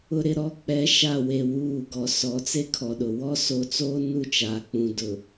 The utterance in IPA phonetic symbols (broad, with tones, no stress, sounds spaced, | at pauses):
ʊ˨ ɾ ɪ˨ ɾ ɔ˨˦ k͡p ɛ˨˦ ʃ a˦˨ w e˨ w uː˦˨ ɡ ɔ˨ s ɔ˨˦ t͡s e˦ kʰ ɔ˨ ɗ ʊ˨ w ɔ˦ s o˨˦ t͡s oː˦ n u˦˨ t͡ʃ aː˨ k͡p ũ˨ d ʊ˨